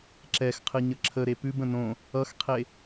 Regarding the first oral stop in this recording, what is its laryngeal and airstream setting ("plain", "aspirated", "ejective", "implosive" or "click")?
click